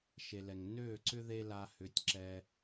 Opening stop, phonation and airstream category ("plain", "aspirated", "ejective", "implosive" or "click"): click